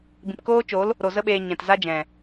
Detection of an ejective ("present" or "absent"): absent